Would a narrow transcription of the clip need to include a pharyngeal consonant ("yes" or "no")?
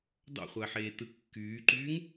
yes